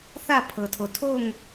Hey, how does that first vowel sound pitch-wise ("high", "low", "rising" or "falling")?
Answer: falling